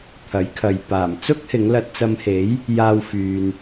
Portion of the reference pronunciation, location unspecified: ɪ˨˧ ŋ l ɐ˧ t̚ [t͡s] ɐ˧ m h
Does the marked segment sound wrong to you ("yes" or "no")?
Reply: no